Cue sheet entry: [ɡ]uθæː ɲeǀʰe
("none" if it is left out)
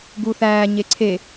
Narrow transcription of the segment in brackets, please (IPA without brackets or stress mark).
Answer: ɡ